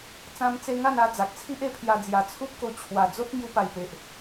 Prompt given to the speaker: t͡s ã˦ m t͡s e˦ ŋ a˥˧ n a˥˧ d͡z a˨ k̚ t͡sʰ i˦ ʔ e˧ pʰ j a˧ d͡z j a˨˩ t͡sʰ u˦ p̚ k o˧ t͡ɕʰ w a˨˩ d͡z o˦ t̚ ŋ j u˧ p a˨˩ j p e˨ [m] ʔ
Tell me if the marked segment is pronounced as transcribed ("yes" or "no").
no